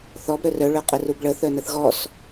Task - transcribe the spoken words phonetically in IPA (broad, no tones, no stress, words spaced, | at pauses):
θɔb ɾœrœ ɭœqʼərubɭə θœnəθɣɔs